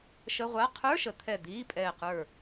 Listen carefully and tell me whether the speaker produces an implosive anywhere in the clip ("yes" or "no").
no